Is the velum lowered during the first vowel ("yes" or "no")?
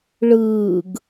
no